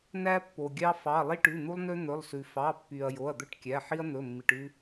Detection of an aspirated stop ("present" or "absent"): absent